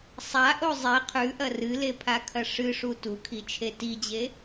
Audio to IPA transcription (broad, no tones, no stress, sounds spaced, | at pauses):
sˤ a ʔ o zˤ e qʰ ʉ ʔ ɐ r ɨ l e pʰ a kʰ ɐ ʂ ɨ ʂ u t u kʰ i t͡ʃʰ e t i d͡ʑ e